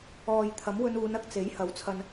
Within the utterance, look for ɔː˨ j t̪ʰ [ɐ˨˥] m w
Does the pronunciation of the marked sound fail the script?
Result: no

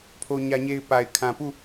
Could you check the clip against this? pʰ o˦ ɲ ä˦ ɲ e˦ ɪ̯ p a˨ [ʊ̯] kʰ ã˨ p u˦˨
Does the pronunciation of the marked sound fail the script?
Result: yes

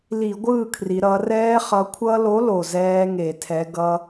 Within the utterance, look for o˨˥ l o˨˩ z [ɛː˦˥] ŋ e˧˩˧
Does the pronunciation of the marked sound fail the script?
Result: no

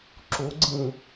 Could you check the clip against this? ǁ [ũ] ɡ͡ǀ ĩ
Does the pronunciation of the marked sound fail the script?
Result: yes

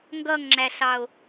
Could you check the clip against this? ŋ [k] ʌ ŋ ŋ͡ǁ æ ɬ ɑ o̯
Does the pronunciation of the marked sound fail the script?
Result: yes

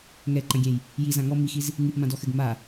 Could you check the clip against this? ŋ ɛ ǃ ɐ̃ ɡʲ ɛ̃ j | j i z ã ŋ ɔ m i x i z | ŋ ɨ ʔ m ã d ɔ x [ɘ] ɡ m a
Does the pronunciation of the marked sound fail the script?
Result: no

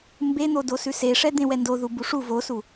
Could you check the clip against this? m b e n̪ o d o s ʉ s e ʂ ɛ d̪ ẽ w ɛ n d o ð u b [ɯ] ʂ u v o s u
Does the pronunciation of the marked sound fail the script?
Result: yes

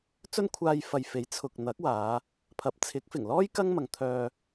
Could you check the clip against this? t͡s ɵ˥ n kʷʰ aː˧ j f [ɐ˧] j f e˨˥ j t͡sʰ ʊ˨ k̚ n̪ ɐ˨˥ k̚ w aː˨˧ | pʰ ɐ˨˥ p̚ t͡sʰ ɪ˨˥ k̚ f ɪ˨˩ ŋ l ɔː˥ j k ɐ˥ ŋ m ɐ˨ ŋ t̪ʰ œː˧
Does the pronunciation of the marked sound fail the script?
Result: yes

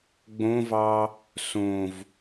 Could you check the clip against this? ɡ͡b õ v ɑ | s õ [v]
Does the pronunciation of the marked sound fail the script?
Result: no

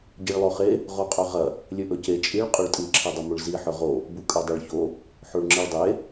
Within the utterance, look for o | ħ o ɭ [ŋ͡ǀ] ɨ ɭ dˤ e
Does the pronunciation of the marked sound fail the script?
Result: yes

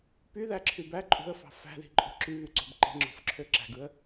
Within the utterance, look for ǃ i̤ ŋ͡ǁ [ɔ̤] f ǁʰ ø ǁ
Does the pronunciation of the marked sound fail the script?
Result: yes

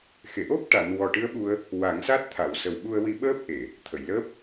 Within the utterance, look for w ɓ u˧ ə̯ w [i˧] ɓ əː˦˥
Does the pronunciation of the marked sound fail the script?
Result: no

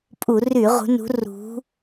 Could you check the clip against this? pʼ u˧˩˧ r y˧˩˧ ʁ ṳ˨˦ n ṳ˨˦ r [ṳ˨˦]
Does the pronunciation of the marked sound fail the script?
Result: no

